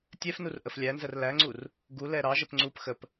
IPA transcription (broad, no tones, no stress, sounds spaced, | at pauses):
tʲ ɛ f n u r ʔ ə f lʲ æ n z ə r l æ ŋ͡ǀ u r | ɡ u l ɛ ɾ ɑ ʒ ə p ŋ͡ǀ u p x ə p